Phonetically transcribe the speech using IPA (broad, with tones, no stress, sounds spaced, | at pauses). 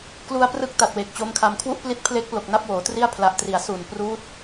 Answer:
k l u˧ a̯ p r ɯ˦˥ k̚ t a˨˩ t̚ w e˨˩ k̚ t͡ɕ o˦˥ m kʰ a˧ m kʰ w u˥˩ ʔ p l i˦˥ t̚ pʰ l e˦˥ k̚ p l o˨˩ k̚ n a˥˩ p̚ w oː˩˦ t r i˥˩ a̯ pʰ l a˨˩ ʔ t r i˩˦ a̯ s u˨˩ n p r uː˦˥ t̚